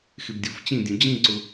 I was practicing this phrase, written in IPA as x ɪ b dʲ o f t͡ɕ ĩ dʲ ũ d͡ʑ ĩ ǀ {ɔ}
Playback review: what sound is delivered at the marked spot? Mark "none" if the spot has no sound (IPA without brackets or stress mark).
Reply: ʊ